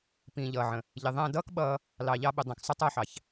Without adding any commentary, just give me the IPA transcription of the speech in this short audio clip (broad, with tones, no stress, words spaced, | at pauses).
pĩː˨ʎʌː˨ʕə̃˨ | ʎɪ˨ðˤæ̃˧ dʌː˦kɓʌː˧ | lɑ˨ ʎɑ˧ɓʊ˨ dˤɛ̃˨ksˤʊ˦ tˤʌː˧ħɑ˨ç